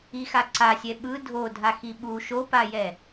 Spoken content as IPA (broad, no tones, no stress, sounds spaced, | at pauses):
i x a ǀ a sʲ ɛ ɓ ɯ dʱ o dʱ a x i ɓ u ʃ o p a j ɛ